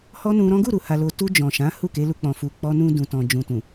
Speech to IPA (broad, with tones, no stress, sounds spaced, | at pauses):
h ɔ˦ n ũ˧ ɾ ɔ̃˦ ɡ u˦˨ ɾ u˨ h a˨ l o˨ t u˧ d͡ʒ ɔ̃˨ ʃ ã˨˦ h u˦˨ k e˨˦ l u˧ k͡p ɔ̃˨ f u˨ k͡p ɔ˧ n ũ˧ d ũ˨ t ɔ̃˨ d͡ʒ ũ˨ t ũ˨